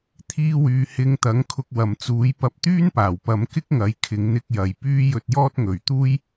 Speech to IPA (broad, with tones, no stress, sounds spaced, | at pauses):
t̪ʰ iː˧ w yː˨ h ɪ˨˧ ŋ t̪ ɐ˨˥ ŋ kʰ ʊ˧ k̚ w ɐ˨ m t͡s uː˨˥ j p ɐ˧ p̚ t̪ yː˥ n p aː˨˩ w p ɐ˨˧ m k ɪ˥ k̚ ŋ ɐ˨˥ j kʰ ɪ˨˧ ŋ n̪ ɪ˧ k̚ j ɐ˨ j p yː˥ j ɵ˧ t̚ j ɔː˥ t̚ ŋ ɵ˨ ɥ t̪ uː˥ j